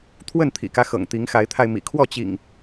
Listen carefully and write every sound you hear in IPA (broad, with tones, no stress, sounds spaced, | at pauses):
t̪ʰ w ə˥˨ n t̪ʰ ḭ˨˩ k ä˦ x ɤ̰˨˩ ŋ t̪ i˨˦ ŋ x a˨˦ ɪ̯ t̪ʰ a˧ ɪ̯ m ḭ˨˩ kʰ w ɔ˥˨ t͡ɕ ḭ˨˩ ŋ